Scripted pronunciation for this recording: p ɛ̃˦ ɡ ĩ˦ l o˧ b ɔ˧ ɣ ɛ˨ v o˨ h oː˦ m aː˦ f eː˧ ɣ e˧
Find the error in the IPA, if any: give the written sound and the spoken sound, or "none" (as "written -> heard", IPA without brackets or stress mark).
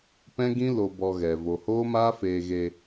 none